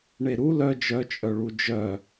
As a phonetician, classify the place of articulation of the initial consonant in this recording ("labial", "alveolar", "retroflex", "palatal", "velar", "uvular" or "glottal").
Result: retroflex